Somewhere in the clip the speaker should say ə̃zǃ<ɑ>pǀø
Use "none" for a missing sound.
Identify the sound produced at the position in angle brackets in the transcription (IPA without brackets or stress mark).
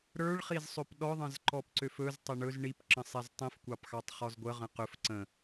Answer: ɔ